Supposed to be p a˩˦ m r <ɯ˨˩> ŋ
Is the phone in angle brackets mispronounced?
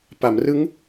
yes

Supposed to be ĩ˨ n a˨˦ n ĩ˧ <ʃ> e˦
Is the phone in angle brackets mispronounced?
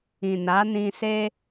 yes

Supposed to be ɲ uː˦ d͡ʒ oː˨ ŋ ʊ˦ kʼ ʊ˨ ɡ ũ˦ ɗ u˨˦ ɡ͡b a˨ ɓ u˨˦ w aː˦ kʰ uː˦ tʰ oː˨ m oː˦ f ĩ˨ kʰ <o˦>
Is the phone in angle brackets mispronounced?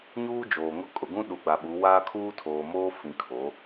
yes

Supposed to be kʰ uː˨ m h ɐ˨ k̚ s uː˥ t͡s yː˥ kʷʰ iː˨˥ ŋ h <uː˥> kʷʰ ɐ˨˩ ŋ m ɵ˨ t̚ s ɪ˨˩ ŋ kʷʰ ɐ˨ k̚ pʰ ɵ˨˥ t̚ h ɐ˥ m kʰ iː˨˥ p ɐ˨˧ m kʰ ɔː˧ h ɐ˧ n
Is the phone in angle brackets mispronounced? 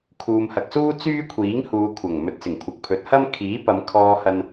yes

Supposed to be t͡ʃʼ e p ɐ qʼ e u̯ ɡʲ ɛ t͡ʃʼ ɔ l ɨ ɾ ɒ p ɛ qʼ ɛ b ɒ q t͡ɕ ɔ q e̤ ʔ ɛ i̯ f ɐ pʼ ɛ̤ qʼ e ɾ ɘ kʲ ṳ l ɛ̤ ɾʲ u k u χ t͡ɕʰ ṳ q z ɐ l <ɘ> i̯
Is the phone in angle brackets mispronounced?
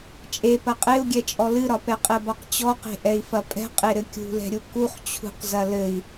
no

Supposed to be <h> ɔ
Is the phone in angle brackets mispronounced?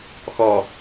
yes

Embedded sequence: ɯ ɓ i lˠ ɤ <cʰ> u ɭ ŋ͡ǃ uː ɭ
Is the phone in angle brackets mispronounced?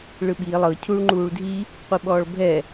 no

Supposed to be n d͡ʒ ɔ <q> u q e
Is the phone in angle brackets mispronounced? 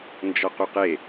no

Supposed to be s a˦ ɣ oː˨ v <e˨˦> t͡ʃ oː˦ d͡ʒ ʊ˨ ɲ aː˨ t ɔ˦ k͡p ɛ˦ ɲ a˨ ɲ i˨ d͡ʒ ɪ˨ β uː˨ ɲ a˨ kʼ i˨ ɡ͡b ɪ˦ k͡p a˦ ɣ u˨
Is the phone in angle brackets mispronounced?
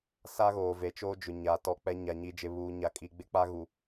yes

